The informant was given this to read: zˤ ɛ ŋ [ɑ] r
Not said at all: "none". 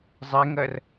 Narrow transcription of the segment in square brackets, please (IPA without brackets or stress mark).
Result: ɐ